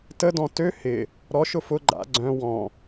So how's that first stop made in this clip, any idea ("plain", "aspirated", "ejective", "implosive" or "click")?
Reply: plain